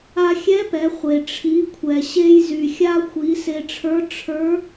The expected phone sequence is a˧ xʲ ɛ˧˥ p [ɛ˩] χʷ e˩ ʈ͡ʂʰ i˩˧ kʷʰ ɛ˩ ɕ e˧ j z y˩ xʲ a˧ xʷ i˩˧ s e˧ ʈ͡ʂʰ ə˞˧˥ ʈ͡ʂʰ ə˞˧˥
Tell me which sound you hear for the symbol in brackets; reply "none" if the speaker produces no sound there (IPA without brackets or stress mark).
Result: ɛ˩˧